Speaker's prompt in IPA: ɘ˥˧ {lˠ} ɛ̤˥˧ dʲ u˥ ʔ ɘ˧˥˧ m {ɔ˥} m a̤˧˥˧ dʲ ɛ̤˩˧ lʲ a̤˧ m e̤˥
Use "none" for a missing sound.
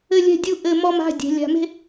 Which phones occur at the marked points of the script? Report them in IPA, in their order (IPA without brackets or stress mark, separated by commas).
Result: lʲ, ɔ˥